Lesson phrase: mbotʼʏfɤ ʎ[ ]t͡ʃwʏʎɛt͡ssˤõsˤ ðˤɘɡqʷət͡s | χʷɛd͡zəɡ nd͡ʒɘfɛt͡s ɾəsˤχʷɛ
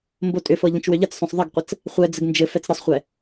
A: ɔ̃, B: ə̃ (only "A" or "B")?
B